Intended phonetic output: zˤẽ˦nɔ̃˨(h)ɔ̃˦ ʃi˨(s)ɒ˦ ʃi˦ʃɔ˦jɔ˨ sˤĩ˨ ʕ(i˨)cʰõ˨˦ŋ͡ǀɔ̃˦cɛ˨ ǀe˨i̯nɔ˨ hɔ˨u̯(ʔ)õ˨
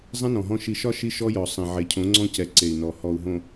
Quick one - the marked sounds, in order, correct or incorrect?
incorrect: ɦ, incorrect: ʃ, incorrect: e˨, incorrect: ɦ

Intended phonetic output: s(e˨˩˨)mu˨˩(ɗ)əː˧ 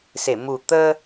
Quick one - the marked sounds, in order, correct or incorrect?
correct, incorrect: t̪

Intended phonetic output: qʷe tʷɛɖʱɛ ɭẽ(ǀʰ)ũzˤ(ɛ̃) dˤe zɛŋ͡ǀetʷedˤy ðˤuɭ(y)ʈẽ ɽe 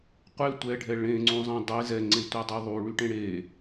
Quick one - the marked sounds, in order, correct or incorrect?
incorrect: ŋ͡ǀ, incorrect: ẽ, correct

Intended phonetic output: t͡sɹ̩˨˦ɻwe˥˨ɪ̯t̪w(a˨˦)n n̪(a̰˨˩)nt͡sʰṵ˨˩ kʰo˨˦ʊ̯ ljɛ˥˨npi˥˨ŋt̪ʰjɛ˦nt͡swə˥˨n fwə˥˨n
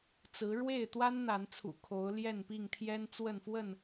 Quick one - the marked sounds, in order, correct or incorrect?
incorrect: a˦, incorrect: a˨˦

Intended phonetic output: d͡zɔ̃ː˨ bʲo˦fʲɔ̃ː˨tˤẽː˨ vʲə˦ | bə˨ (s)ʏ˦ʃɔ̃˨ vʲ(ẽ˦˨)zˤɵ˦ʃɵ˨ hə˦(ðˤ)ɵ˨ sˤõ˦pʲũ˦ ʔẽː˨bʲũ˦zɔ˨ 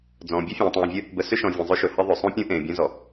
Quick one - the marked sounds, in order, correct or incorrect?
correct, incorrect: ẽ˨, correct

